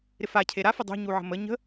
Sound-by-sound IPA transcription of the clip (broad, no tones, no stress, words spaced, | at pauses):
ɾɪfa cʰeɾa fədˤṳ ɲuʕə̤mə ɲə̤